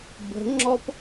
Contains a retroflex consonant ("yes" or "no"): no